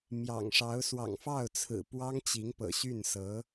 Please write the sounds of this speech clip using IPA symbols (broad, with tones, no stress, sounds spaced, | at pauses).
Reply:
m j ɑ̰˨˩ ŋ ʂ ɑ˧˥ ʊ̯ s w ɑ̰˨˩ ŋ f ɑ˥˩ ʊ̯ t͡sʰ ɹ̩˨˩ p w ɑ˥ ŋ t͡ɕ i˧˥ ŋ p ɤ̰˨˩ ɕ y˥˩ n s ɤ˧˥